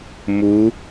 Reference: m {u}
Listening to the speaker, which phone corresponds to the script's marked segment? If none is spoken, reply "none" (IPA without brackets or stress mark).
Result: u